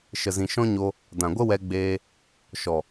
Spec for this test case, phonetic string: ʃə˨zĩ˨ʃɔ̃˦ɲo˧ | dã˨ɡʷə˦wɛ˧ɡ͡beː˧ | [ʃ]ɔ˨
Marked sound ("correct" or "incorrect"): correct